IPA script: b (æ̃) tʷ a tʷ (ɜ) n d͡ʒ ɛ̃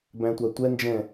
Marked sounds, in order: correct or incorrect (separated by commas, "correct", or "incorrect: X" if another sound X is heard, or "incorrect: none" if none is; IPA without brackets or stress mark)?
correct, incorrect: ɛ